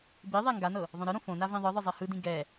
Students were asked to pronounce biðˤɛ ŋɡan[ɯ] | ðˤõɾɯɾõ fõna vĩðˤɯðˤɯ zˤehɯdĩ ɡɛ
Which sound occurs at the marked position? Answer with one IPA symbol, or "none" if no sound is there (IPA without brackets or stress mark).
ɤ